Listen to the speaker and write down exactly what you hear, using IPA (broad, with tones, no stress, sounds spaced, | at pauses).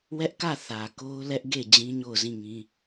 w ɛ˦ ʔ k ä˦˨ θ ä˨ k o˦ ʊ̯ l ɛ˦ ʔ ɡ e˦˨ d͡ʑ ĩ˦ ɲ o˦˨ ʊ̯ z ĩ˦˨ ŋ ĩ˦